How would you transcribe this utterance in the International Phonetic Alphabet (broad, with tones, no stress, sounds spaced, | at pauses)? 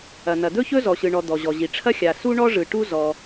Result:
ɐ˩ n̪ ɐ˩ d̪ ɵ˥ ç ɵ˥ z ɔ˩ ɕ ɯ˩ ɳ ɔ˩ d̪ ɔ˩ ʑ ɔ˩ ʑ i˩ ʈ͡ʂʰ ɐ˥ xʲ a˩ s u˥ ɳ ɔ˥ ʐ ɯ˩ ʈ u˥ z ɔ˩